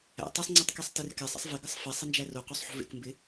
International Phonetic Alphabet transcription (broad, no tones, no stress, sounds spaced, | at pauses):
æ̰ tˤ ɛ sˤ ŋ͡ǀ o tˤ k e sˤ t ɪ r k ɛ sˤ ɛ̰ sˤ v ɪ ɡ ə sˤ f e sˤ ɪ n d͡ʒ æ r o q o sˤ ħ o̤ v ḛ k m b ɪ